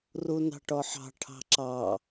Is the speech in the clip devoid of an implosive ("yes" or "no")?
yes